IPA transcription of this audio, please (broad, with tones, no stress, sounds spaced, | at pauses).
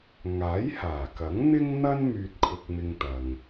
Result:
ŋ aː˨˥ j h aː˨˩ k ɐ˨˥ ŋ n̪ ɪ˥ ŋ n̪ ɐ˥ n m yː˧ t̚ kʰ ʊ˧ k̚ m ɪ˧ ŋ t̪ ɐ˨ ŋ